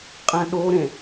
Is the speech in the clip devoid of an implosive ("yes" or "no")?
no